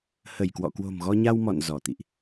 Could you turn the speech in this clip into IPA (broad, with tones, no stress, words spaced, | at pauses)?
hə˧˩jkwɔ̰˧˨ kwo̤˨˩mɣɔ˧ɲa˧w mɔ̰˧˨n zɔ˧˩ t̪ḭ˧˨ʔ